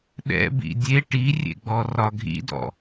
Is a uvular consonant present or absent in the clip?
absent